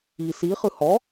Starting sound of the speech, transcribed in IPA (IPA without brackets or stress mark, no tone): i